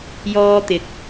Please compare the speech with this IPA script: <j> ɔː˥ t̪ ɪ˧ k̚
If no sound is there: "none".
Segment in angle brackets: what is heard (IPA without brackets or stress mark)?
j